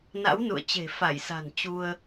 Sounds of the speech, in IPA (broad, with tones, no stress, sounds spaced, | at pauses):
n a̰˧˥ w n ṵ˧˨ ə̯ t͡ɕ e̤˨˩ f a˧˩ j s a̤˨˩ n t͡ɕ u˧ ə̯